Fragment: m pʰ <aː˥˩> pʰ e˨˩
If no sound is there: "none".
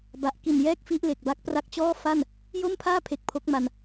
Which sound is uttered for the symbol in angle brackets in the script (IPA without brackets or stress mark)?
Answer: aː˥˩